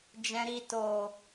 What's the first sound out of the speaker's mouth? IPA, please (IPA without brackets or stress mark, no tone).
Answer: d͡ʒ